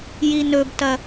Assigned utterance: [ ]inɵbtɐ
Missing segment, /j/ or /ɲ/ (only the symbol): j